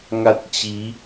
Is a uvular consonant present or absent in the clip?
absent